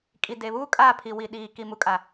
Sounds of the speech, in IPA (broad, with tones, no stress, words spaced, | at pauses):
kʼi˨de˨βuː˦ kʼa˦˨pʰi˨ wi˨ɗiː˨ ki˨mu˨kʼa˨